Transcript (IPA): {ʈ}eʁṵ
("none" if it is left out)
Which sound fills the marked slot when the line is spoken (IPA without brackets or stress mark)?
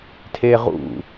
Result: tʰ